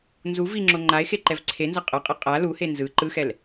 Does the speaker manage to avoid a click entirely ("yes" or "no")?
no